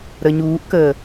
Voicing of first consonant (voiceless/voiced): voiced